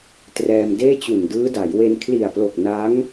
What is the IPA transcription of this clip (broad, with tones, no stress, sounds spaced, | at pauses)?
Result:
t r ɛː˧ m d eː˥˩ t͡ɕ u˨˩ n d ɯː˦˥ d a˩˦ j w e˧ n kʰ l i˨˩ a̯ p l o˨˩ k̚ n a˦˥ ŋ